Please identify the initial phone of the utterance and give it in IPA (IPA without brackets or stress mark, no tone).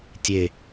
tʲ